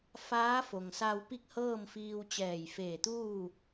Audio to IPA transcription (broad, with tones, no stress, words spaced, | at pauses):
faː˧˥fo˩ŋsa˧w pi˥˨k̚hɤː˥˨mfiː˧w t͡ɕɛː˧˩jfeː˧˩t̪uː˥˨